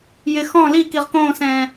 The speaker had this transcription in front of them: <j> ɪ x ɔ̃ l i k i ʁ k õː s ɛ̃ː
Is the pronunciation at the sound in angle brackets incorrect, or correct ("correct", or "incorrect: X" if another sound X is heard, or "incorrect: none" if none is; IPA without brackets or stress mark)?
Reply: correct